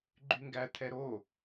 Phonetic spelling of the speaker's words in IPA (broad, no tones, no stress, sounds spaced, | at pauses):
ɡ͡ǃ y ŋ ɡ æ t̪ʰ ɛ ɾ o